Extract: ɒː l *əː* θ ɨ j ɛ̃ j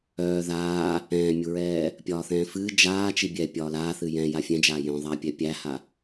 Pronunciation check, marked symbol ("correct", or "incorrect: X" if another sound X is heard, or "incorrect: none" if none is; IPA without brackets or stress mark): incorrect: aː